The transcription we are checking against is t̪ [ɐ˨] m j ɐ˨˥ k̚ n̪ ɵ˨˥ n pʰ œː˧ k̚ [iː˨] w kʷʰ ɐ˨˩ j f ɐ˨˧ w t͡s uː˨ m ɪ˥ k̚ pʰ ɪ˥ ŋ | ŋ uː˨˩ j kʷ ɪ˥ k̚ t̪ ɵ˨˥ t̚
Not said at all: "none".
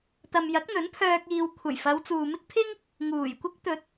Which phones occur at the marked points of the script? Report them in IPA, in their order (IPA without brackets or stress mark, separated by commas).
ɐ˨, iː˨